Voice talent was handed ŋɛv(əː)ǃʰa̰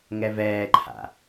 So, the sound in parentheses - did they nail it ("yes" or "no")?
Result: no